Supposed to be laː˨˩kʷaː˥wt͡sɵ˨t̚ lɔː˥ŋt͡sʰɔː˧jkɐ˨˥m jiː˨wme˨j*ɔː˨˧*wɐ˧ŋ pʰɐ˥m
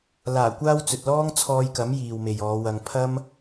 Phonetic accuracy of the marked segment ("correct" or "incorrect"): correct